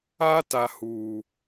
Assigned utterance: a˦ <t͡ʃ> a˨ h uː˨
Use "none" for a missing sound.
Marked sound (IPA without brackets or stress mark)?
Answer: t